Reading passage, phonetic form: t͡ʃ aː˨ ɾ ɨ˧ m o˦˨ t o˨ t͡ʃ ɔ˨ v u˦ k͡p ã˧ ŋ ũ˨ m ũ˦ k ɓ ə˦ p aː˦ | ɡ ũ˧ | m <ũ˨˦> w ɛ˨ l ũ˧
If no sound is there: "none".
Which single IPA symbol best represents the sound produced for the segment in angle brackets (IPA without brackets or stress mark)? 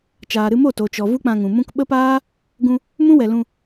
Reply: ũ˦